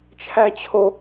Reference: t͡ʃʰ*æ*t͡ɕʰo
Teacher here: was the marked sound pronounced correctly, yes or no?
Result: yes